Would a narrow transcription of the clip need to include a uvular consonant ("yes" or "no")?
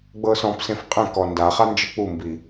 yes